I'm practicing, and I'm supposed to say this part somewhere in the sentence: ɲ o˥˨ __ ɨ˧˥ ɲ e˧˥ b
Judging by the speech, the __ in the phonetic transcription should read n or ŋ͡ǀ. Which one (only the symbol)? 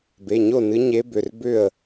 n